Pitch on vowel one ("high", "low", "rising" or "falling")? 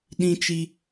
high